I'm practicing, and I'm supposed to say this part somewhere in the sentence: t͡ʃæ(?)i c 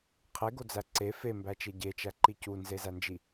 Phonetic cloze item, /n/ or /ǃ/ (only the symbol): ǃ